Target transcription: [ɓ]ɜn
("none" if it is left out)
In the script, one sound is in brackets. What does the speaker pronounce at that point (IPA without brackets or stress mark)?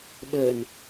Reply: ɓ